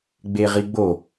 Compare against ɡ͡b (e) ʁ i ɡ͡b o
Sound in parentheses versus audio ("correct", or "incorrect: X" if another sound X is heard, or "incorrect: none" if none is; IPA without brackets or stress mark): correct